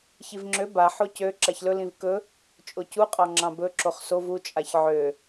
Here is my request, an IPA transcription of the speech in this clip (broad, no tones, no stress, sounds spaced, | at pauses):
ç i v ŋ͡ǁ ø b a ħ o c ø ǁ a ç l ɵ l ĩ v k ɵ | t͡ʃʼ o c u qʼ ɑ ŋ͡ǁ ɑ̃ b ɵ ǁ o χ s o v u t͡ʃʼ a ç ʕ ø